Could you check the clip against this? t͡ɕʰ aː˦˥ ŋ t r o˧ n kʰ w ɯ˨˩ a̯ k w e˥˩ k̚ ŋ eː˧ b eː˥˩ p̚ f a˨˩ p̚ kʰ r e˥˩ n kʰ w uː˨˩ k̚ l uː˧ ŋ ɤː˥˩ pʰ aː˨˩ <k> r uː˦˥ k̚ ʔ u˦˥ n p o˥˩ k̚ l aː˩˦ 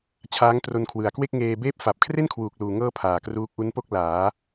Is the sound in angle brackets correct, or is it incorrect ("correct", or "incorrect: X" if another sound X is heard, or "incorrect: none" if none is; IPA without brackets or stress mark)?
correct